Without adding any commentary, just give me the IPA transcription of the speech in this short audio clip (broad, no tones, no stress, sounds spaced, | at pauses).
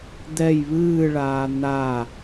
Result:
d̪ ɛ j β ɨː ɭ aː n̪ a